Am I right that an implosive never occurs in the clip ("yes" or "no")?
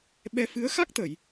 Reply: no